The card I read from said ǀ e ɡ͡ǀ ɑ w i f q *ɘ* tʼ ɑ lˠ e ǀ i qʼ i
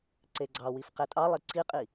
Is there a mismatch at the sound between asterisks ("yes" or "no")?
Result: yes